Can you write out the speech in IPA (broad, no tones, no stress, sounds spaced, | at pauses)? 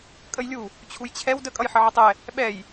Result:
kʼ ə j lʲ u | t͡ɕʰ u j t͡ɕʰ ɛ w d ə kʼ ʌ j ħ ʌ ʕ ə tˤ ɛ | ɓ ɛ j